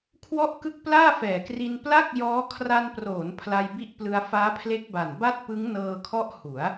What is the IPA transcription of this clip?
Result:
kʰ w ɔ˥˩ ʔ k ɯ˥˩ k̚ p l aː˥˩ f ɛː˨˩ k r i˧ n p l a˥˩ k̚ j ɔː˦˥ kʰ r a˧ n p r oː˩˦ n pʰ l a˧ j b i˦˥ ʔ p l ɯ˧ a̯ f aː˦˥ pʰ l e˦˥ k̚ b a˨˩ n b a˥˩ t̚ p ɯ˦˥ ŋ n ɤː˧ kʰ ɔ˦˥ ʔ h u˩˦ a̯

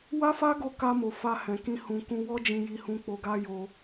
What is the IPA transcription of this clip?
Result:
w a˦ f a˦ ɡ o˦ k a˧ m o˨ f a˧ h ɛ̃˨ k ĩ˧ h ũ˨ k ũ˧ w ɔ˦ d͡ʒ ĩ˧ j i˧ h ũ˧ k͡p o˧ ɡ a˦ j o˧

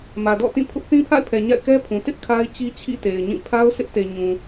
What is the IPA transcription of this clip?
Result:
m ä˨ d ɔ̰˦˨ t ĩ˦˨ pʰ ʊ˦ ʔ θ ĩ˦ pʰ a̰˦˨ ɪ̯ pʰ ɛ˨ ɲ a̰˦˨ ɪ̯ k ɛ˦ pʰ ũ˨ t ɪ˦ ʔ kʰ a˦ ɪ̯ t͡ɕ i˦ t͡ɕʰ ḭ˦˨ t e˨ ɪ̯ ɲ ĩ˦˨ pʰ a˦ ʊ̯ sʰ ɪ˦ ʔ t e˨ ɲ ũ˨

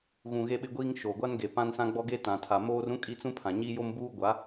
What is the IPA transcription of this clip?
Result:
ɣ ũ˨ ɣ e˦ ɓ ɪ˦ ɡʷ iː˦ ŋ ʃ o˨ ɡʷ a˦ n ɡ e˨ p ã˦ n s ã˦ ɡ͡b ɔ˦ ɡ e˦ t ã˨ tʰ a˨ m oː˦ r ũ˦ kʼ i˦ t͡s ũ˦ pʰ ã˨ ɲ i˦ j o˦ m b uː˦ ɡʷ a˨˦

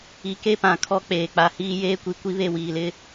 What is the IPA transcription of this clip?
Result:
i˨ k e˦ p ã˨ kʰ ɔ˦ k͡p eː˨ k͡p a˨ h iː˦ j eː˦ kʷ i˨ kʷ i˦ β e˦˨ w iː˨ l ɪ˦

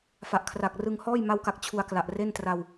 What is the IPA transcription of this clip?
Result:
f a˨˩ ʔ kʰ r a˨˩ k̚ r ɯ˧ ŋ h ɔː˥˩ j m a˦˥ w k a˨˩ k̚ t͡ɕʰ u˧ a̯ k l a˨˩ ʔ r e˥˩ n t r a˧ w

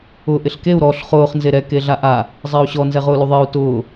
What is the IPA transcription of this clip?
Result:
ʊ ʔ ɪ ɬ k e u̯ ɾ ɔ ɬ χ ʊː χ n z e ɾ ɛ k e ɮ a ʔ a | zˤ ɛ u̯ ɕ ɔ n z ɛ ʁ ʊː l u ðˤ ɪː u̯ t ʊː

